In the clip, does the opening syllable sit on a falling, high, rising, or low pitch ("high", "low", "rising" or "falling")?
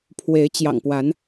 rising